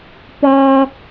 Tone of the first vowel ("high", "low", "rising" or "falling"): high